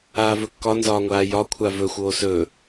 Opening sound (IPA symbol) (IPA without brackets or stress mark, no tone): aː